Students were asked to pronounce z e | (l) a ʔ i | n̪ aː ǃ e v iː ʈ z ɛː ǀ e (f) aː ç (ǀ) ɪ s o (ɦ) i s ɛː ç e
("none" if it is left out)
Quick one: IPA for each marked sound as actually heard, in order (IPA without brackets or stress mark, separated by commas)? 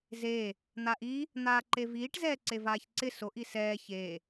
n̪, v, ǀ, ʔ